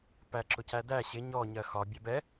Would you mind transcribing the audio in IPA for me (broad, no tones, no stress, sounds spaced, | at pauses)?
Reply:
p æ ǁ ʊ c æ d æ ɕ ɪ ɲ ɔ ɲ ɜ x ɒ bʲ ɛ b ɛ